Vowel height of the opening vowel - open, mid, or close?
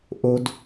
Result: mid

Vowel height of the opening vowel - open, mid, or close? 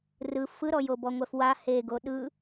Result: close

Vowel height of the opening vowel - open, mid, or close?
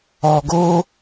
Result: mid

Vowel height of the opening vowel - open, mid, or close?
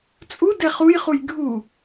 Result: close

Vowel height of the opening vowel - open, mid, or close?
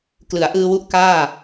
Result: close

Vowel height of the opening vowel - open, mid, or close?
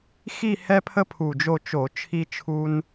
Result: close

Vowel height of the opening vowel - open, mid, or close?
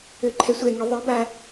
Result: mid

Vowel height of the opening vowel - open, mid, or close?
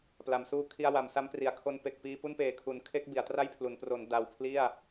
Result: open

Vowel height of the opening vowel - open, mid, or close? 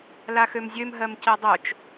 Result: open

